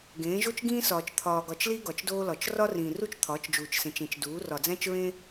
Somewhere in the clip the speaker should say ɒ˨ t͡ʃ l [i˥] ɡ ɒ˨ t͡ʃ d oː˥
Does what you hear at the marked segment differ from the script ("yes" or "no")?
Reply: no